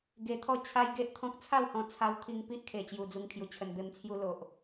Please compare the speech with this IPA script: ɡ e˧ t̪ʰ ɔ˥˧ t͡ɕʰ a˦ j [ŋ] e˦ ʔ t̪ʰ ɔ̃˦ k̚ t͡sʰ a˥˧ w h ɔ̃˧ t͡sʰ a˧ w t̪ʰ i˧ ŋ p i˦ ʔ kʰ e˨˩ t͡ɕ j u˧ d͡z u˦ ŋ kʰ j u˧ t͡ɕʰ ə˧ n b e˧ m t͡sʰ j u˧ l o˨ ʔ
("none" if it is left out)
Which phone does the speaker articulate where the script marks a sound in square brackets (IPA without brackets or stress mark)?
ɡ